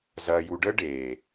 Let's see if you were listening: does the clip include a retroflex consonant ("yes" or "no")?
yes